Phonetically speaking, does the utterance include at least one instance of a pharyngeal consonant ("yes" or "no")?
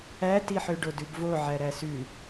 yes